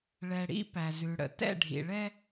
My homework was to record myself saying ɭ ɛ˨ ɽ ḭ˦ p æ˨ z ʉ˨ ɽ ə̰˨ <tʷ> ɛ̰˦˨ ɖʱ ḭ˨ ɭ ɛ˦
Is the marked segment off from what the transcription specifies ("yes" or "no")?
yes